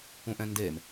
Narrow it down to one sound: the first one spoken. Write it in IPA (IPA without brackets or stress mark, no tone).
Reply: ũ